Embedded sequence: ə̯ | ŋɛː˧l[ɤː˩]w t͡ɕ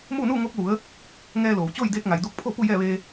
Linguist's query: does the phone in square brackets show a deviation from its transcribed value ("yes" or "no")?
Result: yes